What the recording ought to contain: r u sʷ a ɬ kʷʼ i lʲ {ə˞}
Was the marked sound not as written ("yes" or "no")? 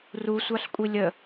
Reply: yes